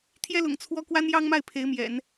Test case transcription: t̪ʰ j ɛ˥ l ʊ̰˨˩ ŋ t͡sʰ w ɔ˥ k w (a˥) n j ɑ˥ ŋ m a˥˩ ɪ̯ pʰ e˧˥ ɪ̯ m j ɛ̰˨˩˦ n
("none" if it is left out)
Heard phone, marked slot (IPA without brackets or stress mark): a˥